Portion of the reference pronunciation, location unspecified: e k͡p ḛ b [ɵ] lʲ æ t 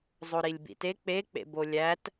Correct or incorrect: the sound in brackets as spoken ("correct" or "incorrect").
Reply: incorrect